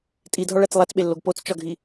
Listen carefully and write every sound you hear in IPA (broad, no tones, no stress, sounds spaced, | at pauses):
tʼ i dʱ ɒ ɭ æ t͡s lˠ æ t͡s ɓ e lː o ɡ p o t͡s t͡ʃ ɒ ɡʱ i